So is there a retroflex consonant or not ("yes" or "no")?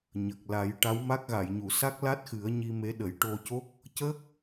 yes